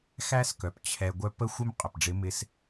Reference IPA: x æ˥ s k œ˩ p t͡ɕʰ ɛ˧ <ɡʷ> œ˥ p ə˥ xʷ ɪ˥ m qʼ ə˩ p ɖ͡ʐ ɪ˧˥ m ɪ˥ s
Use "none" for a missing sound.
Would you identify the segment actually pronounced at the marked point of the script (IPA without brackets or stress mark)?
ɡʷ